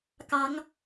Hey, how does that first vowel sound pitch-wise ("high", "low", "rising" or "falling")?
rising